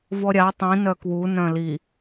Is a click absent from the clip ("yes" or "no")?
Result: yes